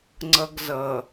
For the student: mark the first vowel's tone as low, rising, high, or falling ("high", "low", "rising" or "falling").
high